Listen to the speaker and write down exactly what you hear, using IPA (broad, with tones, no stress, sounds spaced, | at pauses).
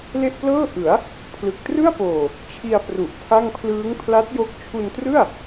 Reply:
l e˥˩ ʔ p l ɤː˥˩ ʔ ɯ˩˦ a̯ | pʰ l ɯ˨˩ k̚ t r ɯ˥˩ a̯ p oː˨˩ | t͡ɕʰ i˧ a̯ p r u˨˩ ʔ tʰ a˥˩ ŋ pʰ l ɯː˦˥ ŋ pʰ l a˦˥ t̚ j o˦˥ k̚ t͡ɕʰ u˧ n t r ɯ˥˩ a̯